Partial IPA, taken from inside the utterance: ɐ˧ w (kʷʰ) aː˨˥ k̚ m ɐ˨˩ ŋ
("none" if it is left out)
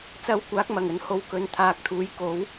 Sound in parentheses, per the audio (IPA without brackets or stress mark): kʷ